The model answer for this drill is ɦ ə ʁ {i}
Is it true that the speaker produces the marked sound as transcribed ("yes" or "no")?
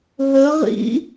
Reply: no